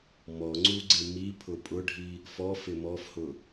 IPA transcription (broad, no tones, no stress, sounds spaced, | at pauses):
m ɔ ŋ͡ǀ u ɡ͡ǀ ɪ m i pʰ ʊ pʼ ʊ ɖʱ i | f ɔ f ɪ m ɔ f h ʊ